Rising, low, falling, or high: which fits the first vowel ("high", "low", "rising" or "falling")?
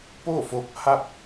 falling